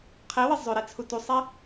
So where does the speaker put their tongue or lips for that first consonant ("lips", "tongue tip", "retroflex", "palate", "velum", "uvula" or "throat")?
uvula